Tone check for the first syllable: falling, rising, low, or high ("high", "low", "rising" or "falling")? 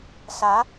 rising